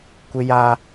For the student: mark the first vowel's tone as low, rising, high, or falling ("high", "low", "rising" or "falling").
high